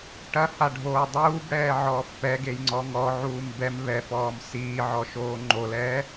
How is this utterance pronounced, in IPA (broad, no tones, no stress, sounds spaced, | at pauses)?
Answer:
ʈ ɐ h a ɖʱ oː dˤ uː b ɽ ɛː ʕ ɔː f p ɛ ɡ e j ŋ͡ǀ ɔ ŋ ɔ ʕ uː m b ɛ m β ɛ f ɔː m s iː ʕ ɔ ʃ oː ŋ͡ǃ o l ɛː